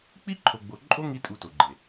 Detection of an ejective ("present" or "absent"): present